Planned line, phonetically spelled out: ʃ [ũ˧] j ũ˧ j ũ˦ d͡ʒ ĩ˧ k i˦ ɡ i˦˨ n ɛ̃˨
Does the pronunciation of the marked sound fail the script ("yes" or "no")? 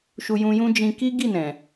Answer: yes